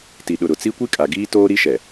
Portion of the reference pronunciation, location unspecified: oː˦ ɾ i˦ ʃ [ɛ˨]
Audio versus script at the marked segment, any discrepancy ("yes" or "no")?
no